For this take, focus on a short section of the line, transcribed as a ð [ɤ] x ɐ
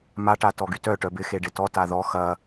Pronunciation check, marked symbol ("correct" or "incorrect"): incorrect